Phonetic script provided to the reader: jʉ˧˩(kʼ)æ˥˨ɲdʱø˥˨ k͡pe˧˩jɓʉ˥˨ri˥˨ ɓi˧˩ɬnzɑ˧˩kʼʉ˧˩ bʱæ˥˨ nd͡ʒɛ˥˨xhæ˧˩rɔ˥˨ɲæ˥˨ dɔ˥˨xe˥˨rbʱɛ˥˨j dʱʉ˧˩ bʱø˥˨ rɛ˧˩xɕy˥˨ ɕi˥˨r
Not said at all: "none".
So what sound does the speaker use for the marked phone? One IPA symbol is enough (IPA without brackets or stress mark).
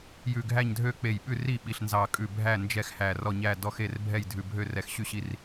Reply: ɡʱ